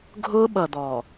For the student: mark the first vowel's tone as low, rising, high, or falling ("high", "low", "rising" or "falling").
high